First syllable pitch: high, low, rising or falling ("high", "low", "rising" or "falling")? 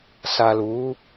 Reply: low